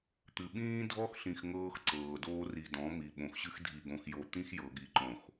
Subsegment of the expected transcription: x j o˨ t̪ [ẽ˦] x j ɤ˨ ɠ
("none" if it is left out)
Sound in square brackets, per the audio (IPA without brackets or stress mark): ĩ˦